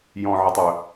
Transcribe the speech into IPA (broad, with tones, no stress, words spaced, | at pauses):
jɔ̃˨ʕə˨tˤ ɵ˨